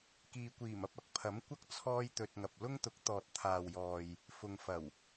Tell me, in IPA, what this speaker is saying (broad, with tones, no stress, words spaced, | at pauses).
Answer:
kiː˨kʷiː˨˩mɐ˧p̚ ɐ˨k̚pʰɐ˨˥mkʷɐ˥k̚ t͡sʰɔː˥jt̪ɵ˧t̚ŋɐ˨p̚ lʊ˥ŋt̪ʊ˨˥k̚ t̪ɔː˨t̚ t̪ʰaː˨wjɔː˨j | fʊ˨ŋfɐ˨˩w